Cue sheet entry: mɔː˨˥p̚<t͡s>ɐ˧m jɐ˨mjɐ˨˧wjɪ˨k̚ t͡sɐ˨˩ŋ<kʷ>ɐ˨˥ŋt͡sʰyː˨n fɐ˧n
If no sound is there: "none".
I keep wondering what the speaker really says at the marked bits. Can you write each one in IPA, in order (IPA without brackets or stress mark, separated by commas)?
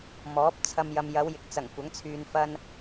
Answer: t͡sʰ, kʷ